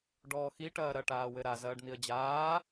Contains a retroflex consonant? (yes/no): yes